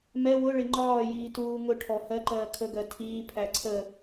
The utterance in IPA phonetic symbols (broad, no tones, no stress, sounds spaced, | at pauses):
m ɛ w ʊ ɭ ɪ ŋ͡ǃ ɒː j iː t uː ŋ ʊ ʈʰ ɔ h ɜ ǃ ɜː kʰ ə ɡ ɜ tʰ iː pʰ æ ǀʰ ə